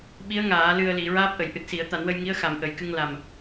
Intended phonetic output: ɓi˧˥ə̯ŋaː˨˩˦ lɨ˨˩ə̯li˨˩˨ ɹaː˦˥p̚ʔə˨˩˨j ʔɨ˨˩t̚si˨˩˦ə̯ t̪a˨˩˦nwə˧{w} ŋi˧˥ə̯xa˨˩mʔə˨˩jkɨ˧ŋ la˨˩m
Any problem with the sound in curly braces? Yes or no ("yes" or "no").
yes